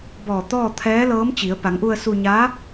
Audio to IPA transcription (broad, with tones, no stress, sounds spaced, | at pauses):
b ɔː˧˩ t̪ ɔː˥˨ t̪ʰ ɛː˧˥ l ɤː˧˥ m t͡ɕ i˩˧ ə̯ p a˩˧ ŋ ʔ u˧ ə̯ s u˧ ɲ a˧˥